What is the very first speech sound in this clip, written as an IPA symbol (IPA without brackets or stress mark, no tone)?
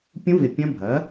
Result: pʲ